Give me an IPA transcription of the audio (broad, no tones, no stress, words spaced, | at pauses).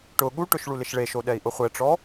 ʈʊ ɠuʈʊʃ ɭulɪʃɭeʃo ɗɛi̯ʔʊχʷɛʈ͡ʂɔ